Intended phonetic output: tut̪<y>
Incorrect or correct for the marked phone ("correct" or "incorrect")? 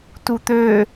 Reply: incorrect